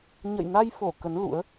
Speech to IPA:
ɲ ə̰˧˨ j n a˧ j f o˧˩ k ə˨˦ n l ṵ˧˥ ə̯

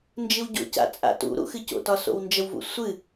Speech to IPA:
n d͡ʒ ɨ w ɟ o̰ c a̰ t͡sʼ a̰ t ṵ ɾ ṵ x ɨ c o̰ t ɒ s o̰ w n d͡ʒ ə w v ṵ sʷ ɨ

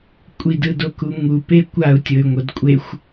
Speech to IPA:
kʷʼ i d ɯ d o k u ŋ u p e kʷ a u̯ tʲ ɤ y̯ ŋʷ ɤ d kʷʼ e xʷ

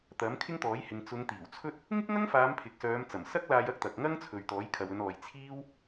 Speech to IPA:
t̪ ɐ˨˥ m kʰ ɪ˥ ŋ t̪ ɔː˨˥ j h ɪ˨ ŋ t͡s ʊ˨˧ ŋ t̪ iː˨˩ w t͡sʰ ɵ˥ t̚ | ŋ ɪ˥ k̚ ŋ ɐ˥ ŋ f aː˨˧ m pʰ ɪ˨ k̚ s œː˨˧ m t͡s ɐ˨˩ m s ɐ˥ k̚ l aː˧ j ɐ˥ k̚ t̪ ɐ˨ k̚ ŋ ɐ˥ ŋ t͡sʰ ɵ˨ ɥ t̪ ɔː˨˥ j kʰ ɐ˨ w ɵ˨˧ n ɔː˨ j t͡sʰ iː˥ w

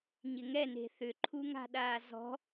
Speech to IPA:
ɲ ɪ ŋ ɛ n e̤ θ ʏ ǃʰ u ŋ a̤ ɗ aː z ɔ̤

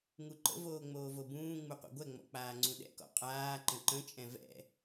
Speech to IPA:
ŋ u ǃ ə̰ v oː ŋ͡m oː v o b ũː ŋ͡m u qʷ ɛ̰ ɡʷ ɛ ŋ͡m ɔ̰ k͡p aː ŋ͡ǀ ũ ɗ ɛ̰ k ɔ̰ qʼ aː ǃ ə̃ ǃ ə̃ t͡ʃʼ ɛ̃ v ɛ̰

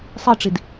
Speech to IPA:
sˤ i ʈ͡ʂ i d

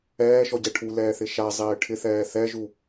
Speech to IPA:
ɛː ʃ ɔ ɟ ɛ ʈʰ u l ɛː θ ɪ ʃ a zˤ ɪː ʈʰ ɪ θ ɛː θ ɛ ʒ u

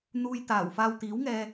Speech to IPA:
n̪ uː˧ j t̪ aː˨˩ w f aː˧ w t̪ iː˨˥ w ŋ ɛː˧

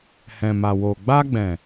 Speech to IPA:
h ɛ̃˨ m a˨ w o˨ ɡ͡b a˧ ɡ͡b ɛ̃˨

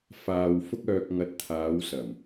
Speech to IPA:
f aː˨ w f ʊ˧ k̚ œː˨ k̚ ŋ ɐ˨˥ t̚ t̪ʰ aː˨˧ w s ɐ˨˩ m

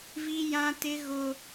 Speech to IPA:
v i˦ j ã˦ t ɪ˦ ɣ ʊ˦

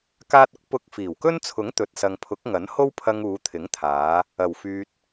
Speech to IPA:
k aː˧ t̚ ʊ˥ k̚ p ʊ˧ k̚ f iː˨˩ w k ɵ˥ n t͡sʰ ʊ˨˥ ŋ t̪ ɵ˨ t̚ s ɐ˨ ŋ pʰ ʊ˨˥ k̚ ŋ ɐ˨˥ n h o˥ w pʰ ɐ˧ ŋ uː˨˧ t̪ʰ ɪ˨˥ ŋ t̪ʰ aː˨˧ | ɐ˨˩ w f yː˧ t̚

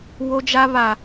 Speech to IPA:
w o˦ d͡ʒ a˦ β a˨

